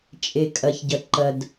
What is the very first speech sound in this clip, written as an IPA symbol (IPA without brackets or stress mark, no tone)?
t͡ʃʼ